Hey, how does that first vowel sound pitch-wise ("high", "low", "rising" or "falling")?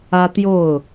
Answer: high